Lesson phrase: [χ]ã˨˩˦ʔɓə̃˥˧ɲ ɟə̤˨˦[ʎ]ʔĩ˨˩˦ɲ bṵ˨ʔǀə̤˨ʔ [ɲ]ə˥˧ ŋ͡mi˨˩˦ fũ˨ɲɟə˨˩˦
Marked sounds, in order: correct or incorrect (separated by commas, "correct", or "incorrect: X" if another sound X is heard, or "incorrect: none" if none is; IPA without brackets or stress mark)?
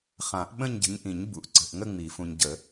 correct, incorrect: ɲ, incorrect: ŋ